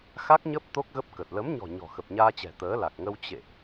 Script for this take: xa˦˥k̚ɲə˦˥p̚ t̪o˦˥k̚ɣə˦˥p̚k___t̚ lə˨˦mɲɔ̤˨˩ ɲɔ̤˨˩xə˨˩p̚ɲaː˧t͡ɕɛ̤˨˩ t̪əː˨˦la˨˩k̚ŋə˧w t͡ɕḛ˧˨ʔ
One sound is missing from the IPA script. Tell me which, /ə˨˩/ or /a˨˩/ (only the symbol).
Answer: ə˨˩